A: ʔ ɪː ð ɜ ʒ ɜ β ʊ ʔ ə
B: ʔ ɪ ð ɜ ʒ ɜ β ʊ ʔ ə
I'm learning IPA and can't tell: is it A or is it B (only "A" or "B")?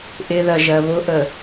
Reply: B